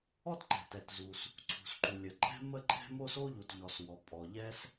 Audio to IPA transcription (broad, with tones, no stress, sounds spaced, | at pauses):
ɔ˥ t ǃ ɛ̤˩ t ɛ˩ t z u˩ s | ǀʰ ṳ˩ s ǃ u˩ lʲ ə˩ ǃʼ ɛ̤˥ m ə˥ ǃʼ ɛ̤˥ m o˥ s o˥ ʎ u˩ t ʎ ɔ˩ s w ɔ˩ pʼ ɔ˩ ʎ ɛ˥ s